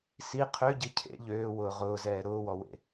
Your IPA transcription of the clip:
s i qʰ ø ɟ i cʰ ḛ ʎ øː w ʊː ʁ ʊː z ɛː ɾ ʊː w ɔ w ḛ

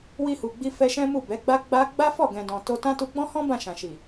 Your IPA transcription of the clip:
w i˧ h u˨ ɡ͡b i˧ f ɛ˧ ʃ ɛ̃˦ m u˦˨ b ɛ˨˦ ɡ͡b a˦ ɡ͡b a˦ ɡ͡b a˦ f ɔ˦˨ ɡ ɛ̃˨ d ɔ̃˨ t o˧ t ã˦ t u˧ ɡ͡b ɔ̃˦ h ɔ̃˦ b ã˦˨ ʃ ã˨ ʃ i˨

